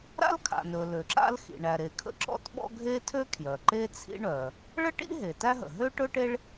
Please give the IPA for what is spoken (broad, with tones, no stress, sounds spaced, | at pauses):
ɾ a̰˥ l kʰ a̰˩ n ɵ˩ l ø˩ ǁ a̰˥ l x ḭ˩ ɳ æ˩ ɾ e˩ kʰ ə̰˥ ǁ ɔ̰˥ t ɓ ɔ̰˥ ɡʱ e˥ tʰ ø˥ kʰ j œ˩ ǃ e˥ t͡sʰ ḭ˥ ɳ œ˩ | ɭ ə˥ ʈ ḭ˥ ɦ e˩ t æ˥ ɦ ə̰˩ ɦ ø˥ ʈ ɵ˥ ʈ e˥ ɭ